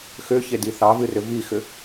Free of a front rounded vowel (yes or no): no